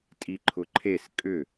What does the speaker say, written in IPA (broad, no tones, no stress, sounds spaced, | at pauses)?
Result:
tʼ i ǃʰ ʊ ǃʰ e s kʼ ʏ